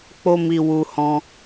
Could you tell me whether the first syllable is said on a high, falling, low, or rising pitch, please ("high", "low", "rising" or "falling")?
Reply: high